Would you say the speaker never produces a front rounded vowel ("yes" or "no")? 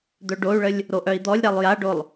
no